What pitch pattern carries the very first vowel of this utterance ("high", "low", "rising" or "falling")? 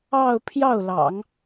falling